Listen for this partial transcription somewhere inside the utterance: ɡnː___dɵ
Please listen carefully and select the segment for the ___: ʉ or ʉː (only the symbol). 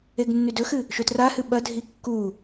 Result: ʉ